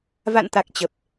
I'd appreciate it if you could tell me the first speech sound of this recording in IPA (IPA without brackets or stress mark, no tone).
v